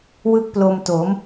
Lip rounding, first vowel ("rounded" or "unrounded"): unrounded